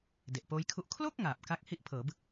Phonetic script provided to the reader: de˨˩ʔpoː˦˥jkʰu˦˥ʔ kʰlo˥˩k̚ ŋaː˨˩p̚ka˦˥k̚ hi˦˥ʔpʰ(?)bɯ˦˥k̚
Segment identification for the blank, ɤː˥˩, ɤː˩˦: ɤː˩˦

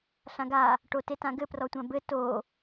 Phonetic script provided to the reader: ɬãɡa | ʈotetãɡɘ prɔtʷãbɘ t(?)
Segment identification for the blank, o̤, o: o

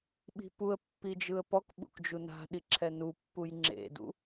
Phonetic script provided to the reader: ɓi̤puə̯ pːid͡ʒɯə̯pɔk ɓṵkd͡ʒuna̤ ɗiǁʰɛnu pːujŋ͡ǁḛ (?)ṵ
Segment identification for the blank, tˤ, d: d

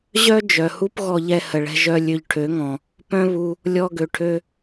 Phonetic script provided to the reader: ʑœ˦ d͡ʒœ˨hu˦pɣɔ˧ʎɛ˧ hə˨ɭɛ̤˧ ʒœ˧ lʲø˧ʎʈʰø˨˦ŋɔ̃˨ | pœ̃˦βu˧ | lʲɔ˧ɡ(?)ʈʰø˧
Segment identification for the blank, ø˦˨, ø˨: ø˨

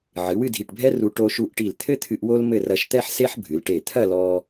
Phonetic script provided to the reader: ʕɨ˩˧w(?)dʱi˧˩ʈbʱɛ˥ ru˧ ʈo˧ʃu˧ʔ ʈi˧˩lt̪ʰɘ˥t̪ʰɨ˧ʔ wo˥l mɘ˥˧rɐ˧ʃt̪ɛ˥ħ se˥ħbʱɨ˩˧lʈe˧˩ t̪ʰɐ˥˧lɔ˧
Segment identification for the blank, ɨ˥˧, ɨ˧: ɨ˥˧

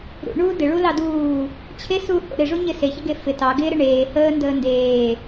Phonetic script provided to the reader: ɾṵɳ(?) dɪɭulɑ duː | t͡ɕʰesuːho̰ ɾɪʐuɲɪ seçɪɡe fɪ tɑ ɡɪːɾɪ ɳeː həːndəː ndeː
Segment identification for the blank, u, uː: uː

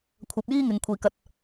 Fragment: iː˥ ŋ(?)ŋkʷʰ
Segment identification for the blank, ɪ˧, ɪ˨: ɪ˨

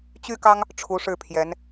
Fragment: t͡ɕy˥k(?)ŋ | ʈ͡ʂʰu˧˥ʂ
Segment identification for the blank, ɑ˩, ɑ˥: ɑ˥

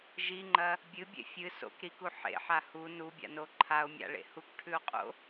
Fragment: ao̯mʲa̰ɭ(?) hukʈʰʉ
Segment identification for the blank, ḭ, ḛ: ḛ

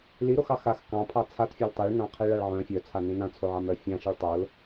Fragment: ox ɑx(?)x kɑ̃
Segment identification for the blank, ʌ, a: a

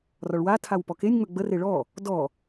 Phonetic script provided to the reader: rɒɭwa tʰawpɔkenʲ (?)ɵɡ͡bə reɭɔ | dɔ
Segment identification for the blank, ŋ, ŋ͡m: ŋ͡m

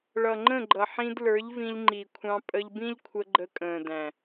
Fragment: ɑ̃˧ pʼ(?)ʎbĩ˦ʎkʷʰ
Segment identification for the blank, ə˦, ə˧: ə˧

